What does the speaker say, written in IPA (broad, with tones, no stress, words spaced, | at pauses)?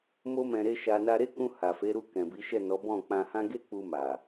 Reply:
mo˧ mɛ̃˧ɾe˦ʃa˧ na˧ɾe˦kũ˧ ha˨fe˨˦ɾu˧ kɛ̃˨bi˨˦ʃɛ˦˨nɔ˨˦ bɔ̃˦˨k͡pã˧hã˦ ɡe˦k͡pu˧ma˨